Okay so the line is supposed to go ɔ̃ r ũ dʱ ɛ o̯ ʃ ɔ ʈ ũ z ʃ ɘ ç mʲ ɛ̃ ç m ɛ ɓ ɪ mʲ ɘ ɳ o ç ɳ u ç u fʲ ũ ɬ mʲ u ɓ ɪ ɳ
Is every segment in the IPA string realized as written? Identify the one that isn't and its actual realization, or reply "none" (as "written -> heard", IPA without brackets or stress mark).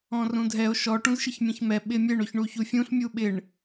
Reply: none